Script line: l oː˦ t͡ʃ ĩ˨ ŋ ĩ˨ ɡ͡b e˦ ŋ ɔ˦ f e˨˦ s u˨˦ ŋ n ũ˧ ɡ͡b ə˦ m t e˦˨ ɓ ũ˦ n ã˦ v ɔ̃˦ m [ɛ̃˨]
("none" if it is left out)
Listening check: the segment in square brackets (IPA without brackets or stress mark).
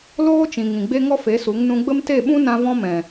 ɛ̃˨